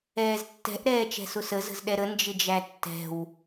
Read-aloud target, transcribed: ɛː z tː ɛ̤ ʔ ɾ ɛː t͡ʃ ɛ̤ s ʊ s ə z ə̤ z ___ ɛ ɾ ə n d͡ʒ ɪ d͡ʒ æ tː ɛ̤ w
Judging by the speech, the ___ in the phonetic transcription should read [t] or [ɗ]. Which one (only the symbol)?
ɗ